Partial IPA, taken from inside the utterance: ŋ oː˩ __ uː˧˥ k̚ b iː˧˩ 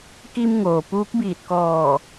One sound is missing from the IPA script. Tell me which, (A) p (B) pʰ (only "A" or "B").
A